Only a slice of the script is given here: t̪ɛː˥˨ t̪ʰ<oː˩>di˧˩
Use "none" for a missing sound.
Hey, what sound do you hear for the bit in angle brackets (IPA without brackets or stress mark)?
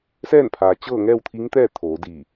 oː˩˧